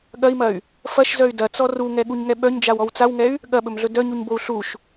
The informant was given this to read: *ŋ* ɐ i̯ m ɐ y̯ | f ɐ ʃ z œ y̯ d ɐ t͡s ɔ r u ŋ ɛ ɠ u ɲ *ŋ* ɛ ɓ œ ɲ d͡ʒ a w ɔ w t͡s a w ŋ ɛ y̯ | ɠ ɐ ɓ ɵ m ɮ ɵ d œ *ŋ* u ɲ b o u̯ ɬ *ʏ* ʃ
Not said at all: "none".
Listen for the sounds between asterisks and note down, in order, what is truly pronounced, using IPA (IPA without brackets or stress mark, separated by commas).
ɠ, ŋ, ɲ, u